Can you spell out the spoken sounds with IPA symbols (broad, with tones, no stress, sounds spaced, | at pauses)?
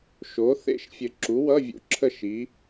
ʃ o˨˥ θ ḛ˥˨ ʃ fʲ ɘ˧˩ ǁ u˨˥ w ʌ˧˥˧ vʲ ṵ˦˥ ǁʰ ə˥˨ ʃ i˨˥